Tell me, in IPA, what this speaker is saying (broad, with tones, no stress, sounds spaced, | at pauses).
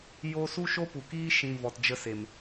j o˦ s u˦ ʃ o˦ p u˨ k iː˦ ʃ ĩ˧ v ɔ˨ t d͡ʒ ə˧ s e˨ m